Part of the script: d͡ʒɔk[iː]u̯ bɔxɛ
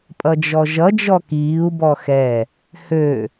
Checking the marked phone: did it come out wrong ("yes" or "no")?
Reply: no